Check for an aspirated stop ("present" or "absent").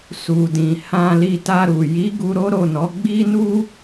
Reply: absent